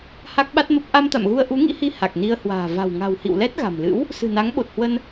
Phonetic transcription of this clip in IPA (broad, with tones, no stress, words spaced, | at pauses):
ha˦˥k̚ɓa˦˥t̚mə˦˥p̚ ʔa˧mt̪a̰˧˨mɣu˧ə̯ ʔu˨˦ŋḭ˧˥hi˧ ha˨˩k̚ni˧ə̯hwa̤ː˨˩ va̤˨˩wŋa̤˨˩whḭ˧˨wlɛ˦˥t̚ ɣa̤˨˩m lɨ̰˧˥w | sɨ̤˨˩na˨˦ŋɓo˨˩t̚hwə˧n